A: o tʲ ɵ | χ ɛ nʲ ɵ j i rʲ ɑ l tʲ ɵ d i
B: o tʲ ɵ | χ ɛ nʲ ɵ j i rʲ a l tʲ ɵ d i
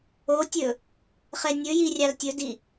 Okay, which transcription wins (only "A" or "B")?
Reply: A